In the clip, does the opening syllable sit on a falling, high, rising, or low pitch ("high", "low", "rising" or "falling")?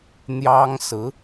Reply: high